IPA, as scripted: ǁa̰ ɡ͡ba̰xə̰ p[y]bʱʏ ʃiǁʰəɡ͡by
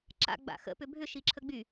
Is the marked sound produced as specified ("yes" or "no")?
no